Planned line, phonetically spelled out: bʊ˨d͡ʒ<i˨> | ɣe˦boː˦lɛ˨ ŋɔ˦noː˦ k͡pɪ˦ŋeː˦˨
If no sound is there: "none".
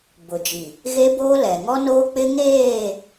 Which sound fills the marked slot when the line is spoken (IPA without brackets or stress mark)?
i˨